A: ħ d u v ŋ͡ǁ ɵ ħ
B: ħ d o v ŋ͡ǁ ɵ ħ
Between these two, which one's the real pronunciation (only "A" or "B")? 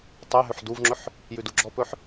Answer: A